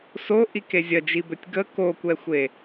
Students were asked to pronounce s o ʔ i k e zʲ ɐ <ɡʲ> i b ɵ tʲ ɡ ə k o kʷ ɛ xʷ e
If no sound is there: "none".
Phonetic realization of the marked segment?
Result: d͡ʒ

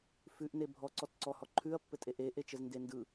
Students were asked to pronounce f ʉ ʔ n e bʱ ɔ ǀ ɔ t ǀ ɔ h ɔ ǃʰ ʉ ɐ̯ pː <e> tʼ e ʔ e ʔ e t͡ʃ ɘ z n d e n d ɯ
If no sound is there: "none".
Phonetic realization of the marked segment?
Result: ɘ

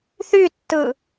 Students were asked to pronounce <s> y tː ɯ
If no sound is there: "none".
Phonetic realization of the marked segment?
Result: θ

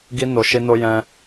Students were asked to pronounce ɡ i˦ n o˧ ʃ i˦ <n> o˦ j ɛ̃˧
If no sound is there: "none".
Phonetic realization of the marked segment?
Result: n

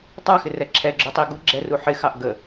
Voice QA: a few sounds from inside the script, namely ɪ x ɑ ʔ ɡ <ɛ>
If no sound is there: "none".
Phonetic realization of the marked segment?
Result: ə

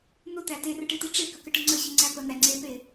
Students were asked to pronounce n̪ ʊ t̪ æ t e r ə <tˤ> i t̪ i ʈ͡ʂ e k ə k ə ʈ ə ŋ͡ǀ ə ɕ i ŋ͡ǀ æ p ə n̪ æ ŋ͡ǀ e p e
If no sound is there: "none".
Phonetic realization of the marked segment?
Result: ʈ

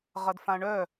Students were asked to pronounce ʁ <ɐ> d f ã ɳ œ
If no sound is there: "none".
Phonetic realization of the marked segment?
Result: ɐ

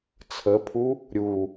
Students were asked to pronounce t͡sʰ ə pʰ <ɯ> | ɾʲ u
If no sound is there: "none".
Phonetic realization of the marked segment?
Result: u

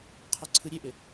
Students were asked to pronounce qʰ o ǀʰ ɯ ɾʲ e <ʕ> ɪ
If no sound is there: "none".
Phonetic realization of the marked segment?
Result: ʔ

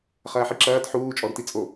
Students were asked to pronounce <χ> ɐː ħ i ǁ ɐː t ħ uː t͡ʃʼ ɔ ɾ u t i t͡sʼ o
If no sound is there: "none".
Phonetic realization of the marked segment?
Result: χ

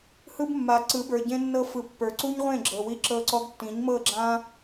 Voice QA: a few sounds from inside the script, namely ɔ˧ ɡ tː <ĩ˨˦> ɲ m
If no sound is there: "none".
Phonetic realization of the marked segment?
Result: ĩ˨˦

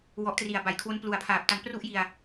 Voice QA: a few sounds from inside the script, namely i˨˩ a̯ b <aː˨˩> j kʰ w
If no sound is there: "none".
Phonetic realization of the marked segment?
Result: a˨˩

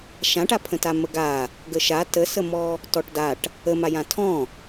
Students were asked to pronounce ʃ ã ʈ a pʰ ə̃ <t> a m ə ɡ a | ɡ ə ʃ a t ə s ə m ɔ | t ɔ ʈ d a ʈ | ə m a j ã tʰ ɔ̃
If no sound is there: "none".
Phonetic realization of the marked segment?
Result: t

